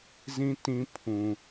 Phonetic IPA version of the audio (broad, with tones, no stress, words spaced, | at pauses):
zĩ˦tĩ˦ pʰũ˦